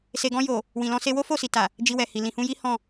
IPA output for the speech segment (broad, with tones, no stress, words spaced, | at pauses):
se˨ɡɔ̃˧jo˨ | wĩ˨lɔ̃˧se˧ wo˦ fo˦˨si˨ta˨ | d͡ʒi˧wɛ˨hi˨ lĩ˨hũ˧ji˦ hɔ̃˦˨